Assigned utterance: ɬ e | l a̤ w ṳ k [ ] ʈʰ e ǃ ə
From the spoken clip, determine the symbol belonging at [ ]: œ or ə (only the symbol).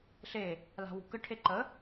ə